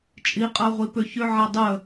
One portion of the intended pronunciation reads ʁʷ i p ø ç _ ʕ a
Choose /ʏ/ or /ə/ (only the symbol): ʏ